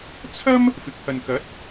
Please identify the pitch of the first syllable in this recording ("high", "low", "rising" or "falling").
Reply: high